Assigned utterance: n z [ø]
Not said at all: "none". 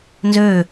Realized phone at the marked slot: ø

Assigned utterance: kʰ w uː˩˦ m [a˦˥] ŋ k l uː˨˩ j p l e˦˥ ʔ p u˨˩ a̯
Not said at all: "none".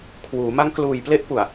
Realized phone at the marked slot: a˦˥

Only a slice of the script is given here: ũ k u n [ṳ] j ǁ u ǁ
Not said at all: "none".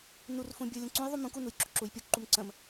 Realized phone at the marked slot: u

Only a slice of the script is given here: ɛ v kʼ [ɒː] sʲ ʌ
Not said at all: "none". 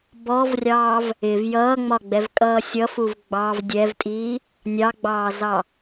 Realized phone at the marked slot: ʌː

